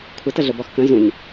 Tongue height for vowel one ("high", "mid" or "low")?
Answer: mid